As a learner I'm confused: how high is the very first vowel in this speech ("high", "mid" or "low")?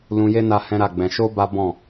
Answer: high